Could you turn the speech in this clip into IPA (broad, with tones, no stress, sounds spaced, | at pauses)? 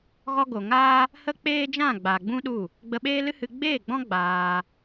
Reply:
ɣ ɔ˧ ɡ o˨ ŋ aː˦ | h ə˦ k͡p eː˦ d͡ʒ ã˦˨ ɡ͡b a˨ ɡ͡b ũ˦ ɗ u˦˨ | ɡ͡b ə˧ ɓ eː˦ l ɨ˦ h ɨ˧ ɡ͡b eː˦˨ ɡ͡b ɔ̃˦ ɡ͡b aː˧